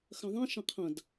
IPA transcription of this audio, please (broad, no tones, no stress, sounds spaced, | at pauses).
x ɐ̃ ðˤ ĩ ʃ ɐ̃ qʰ ɐ̃ d